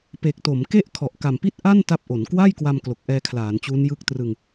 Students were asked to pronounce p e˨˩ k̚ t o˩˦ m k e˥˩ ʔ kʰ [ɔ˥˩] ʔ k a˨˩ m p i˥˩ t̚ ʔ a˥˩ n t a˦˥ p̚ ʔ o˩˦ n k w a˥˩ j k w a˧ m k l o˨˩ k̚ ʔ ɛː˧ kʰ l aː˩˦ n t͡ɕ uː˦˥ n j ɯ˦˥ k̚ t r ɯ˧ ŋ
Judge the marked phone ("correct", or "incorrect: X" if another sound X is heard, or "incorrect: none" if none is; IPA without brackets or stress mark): incorrect: ɔ˨˩